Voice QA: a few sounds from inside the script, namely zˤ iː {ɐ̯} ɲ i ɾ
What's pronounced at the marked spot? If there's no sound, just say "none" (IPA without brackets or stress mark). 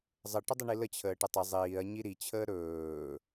ɐ̯